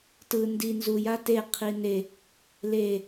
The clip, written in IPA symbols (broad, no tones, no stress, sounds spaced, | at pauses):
t ɯ n d i n z u j a t e qʰ i n e | l e